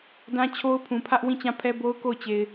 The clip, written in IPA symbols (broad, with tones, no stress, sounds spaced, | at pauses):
d ã˦ t͡ɕʰ o˦ ʊ̯ pʰ ũ˨ pʰ ä˦ ʔ w ĩ˦˨ t͡ɕ ã˦˨ pʰ ɛ˦ b o˦ ʊ̯ k o˦˨ ʊ̯ t͡ɕ e˨ ɪ̯